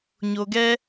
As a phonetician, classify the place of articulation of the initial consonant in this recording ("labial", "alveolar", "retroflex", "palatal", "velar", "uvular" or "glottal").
palatal